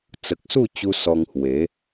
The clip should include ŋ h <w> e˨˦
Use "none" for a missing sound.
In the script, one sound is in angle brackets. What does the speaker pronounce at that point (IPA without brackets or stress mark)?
w